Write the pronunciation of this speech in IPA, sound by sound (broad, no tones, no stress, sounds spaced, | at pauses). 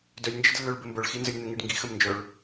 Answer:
d œ lʲ n d͡ʒ ə d lː œ ɭ b ɘ m b œ ɭ x i n z ə lʲ n̪ ə ŋ i ɖ ŋ ɡ i x ə m n d͡ʒ œ ɭ